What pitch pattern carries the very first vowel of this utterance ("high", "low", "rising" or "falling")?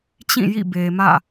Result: falling